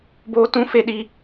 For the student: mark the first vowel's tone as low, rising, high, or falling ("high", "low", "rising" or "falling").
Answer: high